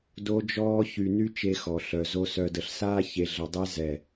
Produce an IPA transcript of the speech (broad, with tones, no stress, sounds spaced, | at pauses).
d o˦ d͡ʒ ɔː˦ ç y˨ n y˦ t͡ʃ e˦ x ɔ˨ ɬ œ˨ z o˦ s œ˨ d ə˨ ɬ s aː˦ ç e˨ ɮ ə˨ dˤ e˦ z ɛ˨